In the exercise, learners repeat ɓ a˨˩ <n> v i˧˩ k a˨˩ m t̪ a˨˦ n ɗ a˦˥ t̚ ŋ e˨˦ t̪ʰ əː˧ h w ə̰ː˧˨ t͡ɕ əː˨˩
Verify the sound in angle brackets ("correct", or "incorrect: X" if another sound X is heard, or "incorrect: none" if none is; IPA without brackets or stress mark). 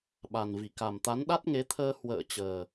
correct